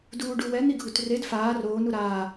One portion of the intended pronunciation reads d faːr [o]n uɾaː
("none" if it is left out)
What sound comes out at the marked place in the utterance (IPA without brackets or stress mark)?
oː